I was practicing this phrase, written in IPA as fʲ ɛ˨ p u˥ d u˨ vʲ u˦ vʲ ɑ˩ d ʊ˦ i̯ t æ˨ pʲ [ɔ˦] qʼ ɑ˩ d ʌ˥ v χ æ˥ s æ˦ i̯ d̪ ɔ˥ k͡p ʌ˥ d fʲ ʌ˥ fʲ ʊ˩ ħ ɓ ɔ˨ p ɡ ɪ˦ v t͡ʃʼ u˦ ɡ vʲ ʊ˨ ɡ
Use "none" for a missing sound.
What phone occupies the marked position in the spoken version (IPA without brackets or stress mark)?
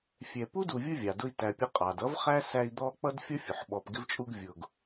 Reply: ʌ˦